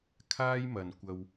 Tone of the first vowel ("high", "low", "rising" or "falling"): high